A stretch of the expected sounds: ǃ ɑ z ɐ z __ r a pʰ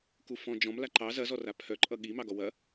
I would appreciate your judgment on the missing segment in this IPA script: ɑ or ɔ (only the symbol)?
ɔ